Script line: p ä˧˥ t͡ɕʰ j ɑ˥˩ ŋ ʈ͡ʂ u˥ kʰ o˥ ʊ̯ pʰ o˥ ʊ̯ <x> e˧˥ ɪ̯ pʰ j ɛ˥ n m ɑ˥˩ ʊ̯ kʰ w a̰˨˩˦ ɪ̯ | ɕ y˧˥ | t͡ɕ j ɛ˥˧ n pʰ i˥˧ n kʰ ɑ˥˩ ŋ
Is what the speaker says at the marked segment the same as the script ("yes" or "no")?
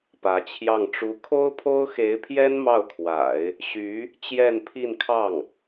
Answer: yes